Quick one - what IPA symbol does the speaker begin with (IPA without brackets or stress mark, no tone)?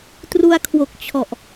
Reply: t